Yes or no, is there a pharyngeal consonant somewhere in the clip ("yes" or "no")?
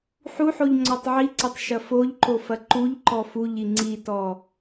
yes